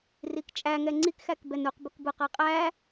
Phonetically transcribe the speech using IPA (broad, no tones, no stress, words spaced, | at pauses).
rikt͡ʃʼæ ŋɛŋ͡ǀik xækbɛnuq bʊkbʊ qaqʼæ